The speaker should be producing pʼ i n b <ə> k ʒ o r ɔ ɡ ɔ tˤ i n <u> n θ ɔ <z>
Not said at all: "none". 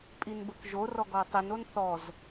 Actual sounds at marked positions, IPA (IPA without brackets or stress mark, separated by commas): ə, o, z